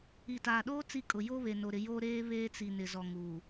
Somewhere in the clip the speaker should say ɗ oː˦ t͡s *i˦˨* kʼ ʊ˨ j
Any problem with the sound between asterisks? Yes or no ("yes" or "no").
yes